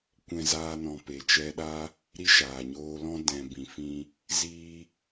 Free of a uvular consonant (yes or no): yes